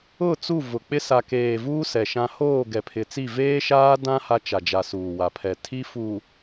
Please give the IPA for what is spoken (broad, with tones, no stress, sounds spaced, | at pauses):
ʊ˦˨ t͡s u˦˨ v ʊ˨ k͡p ɪ˦ s a˨ k eː˨ v uː˦ s ɛ˨ ʃ ã˦ h oː˦˨ ɡ ɛ˨ pʰ ɪ˨ t͡s i˦˨ v eː˦ ʃ aː˦ d ã˦ h a˦ t͡ʃ a˨ d͡ʒ a˨ s uː˨ w a˨ pʰ ɛ˨ tʰ i˦ f uː˨